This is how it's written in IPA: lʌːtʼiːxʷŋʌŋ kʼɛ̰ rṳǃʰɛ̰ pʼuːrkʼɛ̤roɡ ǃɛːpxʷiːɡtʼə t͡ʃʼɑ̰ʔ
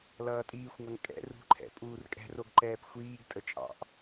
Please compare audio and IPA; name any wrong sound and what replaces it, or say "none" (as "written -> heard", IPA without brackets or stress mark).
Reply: none